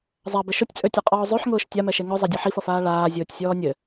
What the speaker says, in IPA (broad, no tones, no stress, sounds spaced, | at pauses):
zˤ a b ɘ ʃ ʊ tʲ t͡sʼ ø tʲ ʌ qʼ ɔː zˤ ø ħ ŋ ʊː ʃ tʲ a m ɛ ʃ e ŋ ʊ zˤ a dʲ ʌ ħ i f ʌ f aː ɭ aː zʲ ʊː tʲ sʲ ɔː nʲ ɘ